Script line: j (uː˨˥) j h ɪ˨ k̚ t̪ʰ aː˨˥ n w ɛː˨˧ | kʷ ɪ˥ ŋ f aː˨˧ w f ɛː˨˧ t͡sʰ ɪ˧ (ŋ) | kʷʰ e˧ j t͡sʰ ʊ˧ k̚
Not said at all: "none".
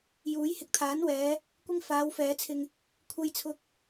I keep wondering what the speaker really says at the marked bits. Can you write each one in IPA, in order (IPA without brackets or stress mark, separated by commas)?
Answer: uː˨˥, ŋ